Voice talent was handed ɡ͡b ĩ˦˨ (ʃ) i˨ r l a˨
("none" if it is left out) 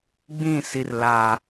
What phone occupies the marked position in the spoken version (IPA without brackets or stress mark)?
s